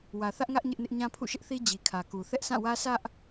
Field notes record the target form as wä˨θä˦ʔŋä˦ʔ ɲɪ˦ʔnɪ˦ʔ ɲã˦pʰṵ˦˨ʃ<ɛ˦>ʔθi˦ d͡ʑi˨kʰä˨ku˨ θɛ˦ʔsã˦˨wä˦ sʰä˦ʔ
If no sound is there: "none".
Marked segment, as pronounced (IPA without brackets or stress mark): ɪ˦